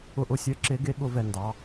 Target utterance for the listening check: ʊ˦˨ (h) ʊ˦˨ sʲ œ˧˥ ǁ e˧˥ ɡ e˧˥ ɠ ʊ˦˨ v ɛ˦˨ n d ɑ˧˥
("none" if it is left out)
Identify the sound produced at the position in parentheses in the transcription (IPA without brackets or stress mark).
ʔ